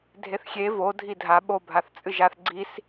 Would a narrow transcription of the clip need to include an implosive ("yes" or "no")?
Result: yes